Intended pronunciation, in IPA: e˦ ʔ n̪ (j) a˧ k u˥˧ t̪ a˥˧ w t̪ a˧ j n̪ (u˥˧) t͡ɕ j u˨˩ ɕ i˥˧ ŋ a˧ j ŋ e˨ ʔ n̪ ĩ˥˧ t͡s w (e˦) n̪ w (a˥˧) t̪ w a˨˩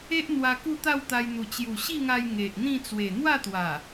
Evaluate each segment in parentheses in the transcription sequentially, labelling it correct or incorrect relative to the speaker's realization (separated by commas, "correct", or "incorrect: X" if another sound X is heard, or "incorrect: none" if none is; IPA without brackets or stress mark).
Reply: incorrect: w, incorrect: u˨˩, incorrect: e˨˩, correct